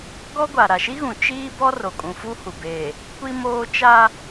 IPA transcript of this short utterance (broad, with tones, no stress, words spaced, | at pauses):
ɡɔ˦ɡʷa˨ ɾa˨ʃi˦ɣũ˨ t͡ʃiː˦ bɔ˦ro˨kʼũ˨fu˦ hu˨beː˨ | kʷi˦moː˦ t͡ʃa˦